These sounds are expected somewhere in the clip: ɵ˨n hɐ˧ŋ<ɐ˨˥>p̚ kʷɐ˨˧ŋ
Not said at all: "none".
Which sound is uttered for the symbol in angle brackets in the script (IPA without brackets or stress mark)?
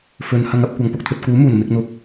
ɐ˧